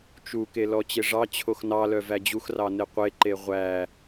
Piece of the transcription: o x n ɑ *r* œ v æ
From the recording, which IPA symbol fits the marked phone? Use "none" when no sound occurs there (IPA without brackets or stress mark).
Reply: l